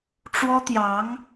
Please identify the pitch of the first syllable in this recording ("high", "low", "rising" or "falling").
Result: high